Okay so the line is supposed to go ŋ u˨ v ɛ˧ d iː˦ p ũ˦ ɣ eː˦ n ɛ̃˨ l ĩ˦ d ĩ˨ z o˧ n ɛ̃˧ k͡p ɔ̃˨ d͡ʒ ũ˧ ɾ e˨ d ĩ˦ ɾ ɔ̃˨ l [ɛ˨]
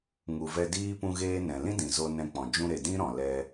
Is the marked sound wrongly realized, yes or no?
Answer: yes